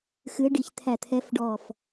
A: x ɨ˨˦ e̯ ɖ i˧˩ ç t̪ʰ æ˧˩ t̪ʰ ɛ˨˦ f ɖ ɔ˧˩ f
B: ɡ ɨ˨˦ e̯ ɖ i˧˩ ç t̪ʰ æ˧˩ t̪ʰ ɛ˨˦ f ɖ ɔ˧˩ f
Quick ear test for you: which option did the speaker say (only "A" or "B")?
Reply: A